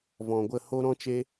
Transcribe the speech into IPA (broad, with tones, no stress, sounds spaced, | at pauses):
v ɔ̃˨ ɡʷ ə˦˨ h o˦ ɾ ɔ̃˦ t͡ʃ e˦